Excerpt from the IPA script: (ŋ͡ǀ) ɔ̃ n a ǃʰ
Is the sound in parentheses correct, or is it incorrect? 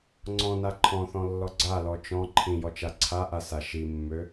correct